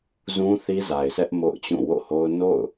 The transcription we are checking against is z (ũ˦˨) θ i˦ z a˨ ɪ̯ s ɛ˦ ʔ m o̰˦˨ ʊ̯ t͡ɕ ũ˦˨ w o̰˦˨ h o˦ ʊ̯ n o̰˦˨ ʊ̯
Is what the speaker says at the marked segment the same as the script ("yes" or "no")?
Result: no